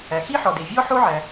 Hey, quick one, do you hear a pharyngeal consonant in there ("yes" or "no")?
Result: yes